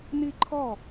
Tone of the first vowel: falling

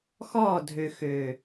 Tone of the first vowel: falling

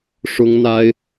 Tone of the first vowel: high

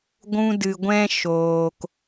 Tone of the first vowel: high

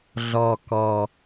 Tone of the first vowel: low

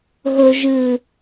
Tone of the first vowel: low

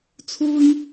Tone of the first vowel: high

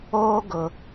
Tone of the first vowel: high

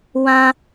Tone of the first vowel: high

